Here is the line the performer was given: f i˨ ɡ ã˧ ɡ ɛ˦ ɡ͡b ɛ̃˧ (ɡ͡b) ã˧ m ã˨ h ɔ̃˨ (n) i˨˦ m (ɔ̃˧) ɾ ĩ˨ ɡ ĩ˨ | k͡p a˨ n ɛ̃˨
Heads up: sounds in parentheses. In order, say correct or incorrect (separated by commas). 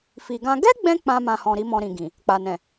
incorrect, incorrect, correct